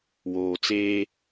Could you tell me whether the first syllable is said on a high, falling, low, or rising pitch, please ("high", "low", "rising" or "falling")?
low